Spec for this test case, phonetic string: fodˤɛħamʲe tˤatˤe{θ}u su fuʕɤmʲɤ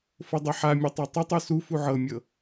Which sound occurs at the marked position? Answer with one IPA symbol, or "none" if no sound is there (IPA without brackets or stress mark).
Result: tˤ